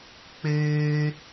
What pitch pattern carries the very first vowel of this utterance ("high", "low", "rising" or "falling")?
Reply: high